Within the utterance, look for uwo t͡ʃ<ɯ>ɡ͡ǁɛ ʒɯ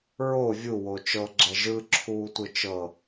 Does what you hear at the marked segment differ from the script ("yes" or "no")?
yes